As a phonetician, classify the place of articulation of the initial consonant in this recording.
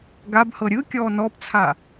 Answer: velar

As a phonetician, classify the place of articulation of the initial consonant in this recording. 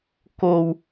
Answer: velar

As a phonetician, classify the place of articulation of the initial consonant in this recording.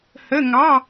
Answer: glottal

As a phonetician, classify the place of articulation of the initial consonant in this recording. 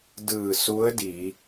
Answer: alveolar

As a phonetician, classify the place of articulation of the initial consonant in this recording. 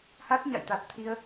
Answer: glottal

